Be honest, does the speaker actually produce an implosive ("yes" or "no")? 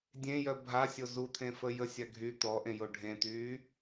no